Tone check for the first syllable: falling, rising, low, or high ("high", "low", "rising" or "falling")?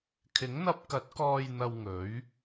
rising